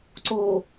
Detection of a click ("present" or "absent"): present